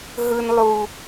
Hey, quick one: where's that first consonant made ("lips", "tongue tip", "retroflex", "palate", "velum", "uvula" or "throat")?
throat